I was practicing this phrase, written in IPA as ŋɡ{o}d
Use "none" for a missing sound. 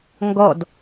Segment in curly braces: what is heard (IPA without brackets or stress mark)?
ɔ